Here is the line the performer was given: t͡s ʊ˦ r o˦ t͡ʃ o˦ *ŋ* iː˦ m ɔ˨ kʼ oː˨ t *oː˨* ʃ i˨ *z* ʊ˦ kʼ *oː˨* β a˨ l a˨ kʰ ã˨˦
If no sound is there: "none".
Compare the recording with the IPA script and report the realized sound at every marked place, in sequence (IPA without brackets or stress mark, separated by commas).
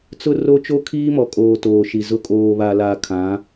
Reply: kʰ, oː˨, z, oː˨